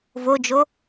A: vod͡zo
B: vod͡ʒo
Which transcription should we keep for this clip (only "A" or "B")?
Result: B